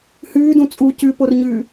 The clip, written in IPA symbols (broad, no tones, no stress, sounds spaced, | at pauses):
h ʉː d ũ t͡sʼ u c ʉ p o r ɲ ʉː